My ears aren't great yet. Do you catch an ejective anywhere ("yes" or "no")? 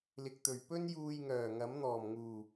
no